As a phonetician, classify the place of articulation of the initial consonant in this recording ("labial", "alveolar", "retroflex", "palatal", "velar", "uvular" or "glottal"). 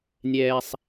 alveolar